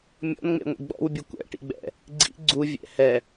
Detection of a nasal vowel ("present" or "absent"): absent